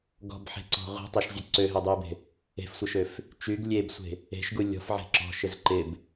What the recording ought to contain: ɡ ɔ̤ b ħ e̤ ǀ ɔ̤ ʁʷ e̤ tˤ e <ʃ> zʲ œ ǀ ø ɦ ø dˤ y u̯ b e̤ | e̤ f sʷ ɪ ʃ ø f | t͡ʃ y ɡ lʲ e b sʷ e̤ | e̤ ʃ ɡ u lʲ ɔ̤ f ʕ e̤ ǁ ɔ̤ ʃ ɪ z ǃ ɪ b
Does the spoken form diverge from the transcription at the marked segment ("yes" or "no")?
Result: no